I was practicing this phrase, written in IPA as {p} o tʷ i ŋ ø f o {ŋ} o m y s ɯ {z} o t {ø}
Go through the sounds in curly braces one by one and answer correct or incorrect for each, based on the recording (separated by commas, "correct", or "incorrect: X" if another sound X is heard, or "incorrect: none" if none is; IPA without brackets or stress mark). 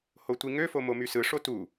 incorrect: h, incorrect: m, incorrect: ʂ, incorrect: u